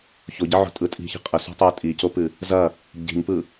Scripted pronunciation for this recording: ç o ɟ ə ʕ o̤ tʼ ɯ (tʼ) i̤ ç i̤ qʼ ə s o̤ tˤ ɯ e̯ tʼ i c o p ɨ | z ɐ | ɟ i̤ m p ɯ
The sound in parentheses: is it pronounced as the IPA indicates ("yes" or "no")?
yes